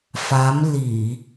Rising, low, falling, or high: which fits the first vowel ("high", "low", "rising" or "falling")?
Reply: rising